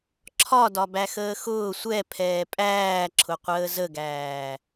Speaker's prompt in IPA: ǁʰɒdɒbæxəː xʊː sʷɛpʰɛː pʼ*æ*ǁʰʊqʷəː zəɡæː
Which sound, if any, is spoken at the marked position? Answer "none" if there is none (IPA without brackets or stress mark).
æː